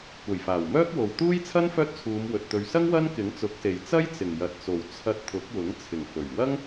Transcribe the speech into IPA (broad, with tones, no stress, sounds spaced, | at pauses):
kʷ ɐ˨˩ j f aː˨˩ w m œː˥ k̚ w o˨ w t̪ uː˥ j t͡sʰ ɐ˥ n f œː˥ t̚ t͡sʰ uː˨˧ m w ɵ˨ t̚ t̪ ɵ˨ ɥ s ɐ˥ ŋ w ɐ˥ n k ɪ˨˥ ŋ t͡s ʊ˨˥ k̚ s e˨ j t͡s ɐ˥ j t͡s ɪ˨˩ ŋ j ɐ˨ t̚ t͡s o˨˩ w t͡sʰ ɐ˧ t̚ t̪ʰ ʊ˨˥ k̚ w ʊ˨˥ ŋ t͡sʰ ɪ˨˩ ŋ f ɵ˨˩ ɥ w ɐ˥ ŋ